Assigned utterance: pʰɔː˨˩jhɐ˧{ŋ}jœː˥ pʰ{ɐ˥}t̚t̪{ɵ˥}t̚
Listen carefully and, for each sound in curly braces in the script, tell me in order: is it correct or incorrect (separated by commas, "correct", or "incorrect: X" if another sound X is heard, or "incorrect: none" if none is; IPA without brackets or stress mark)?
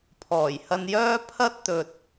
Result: incorrect: n, correct, incorrect: ɵ˨